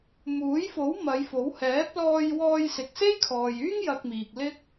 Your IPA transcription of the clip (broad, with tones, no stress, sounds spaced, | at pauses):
m uː˨˥ j f o˨˥ w m ɐ˨˧ j f o˨˥ w h ɛː˨˥ p̚ l ɔː˧ j w ɔː˧ j s ɪ˨ k̚ s e˥ j kʰ ɔː˨ j yː˥ ŋ j ɐ˧ k̚ m iː˨ k̚ l ɪ˥ k̚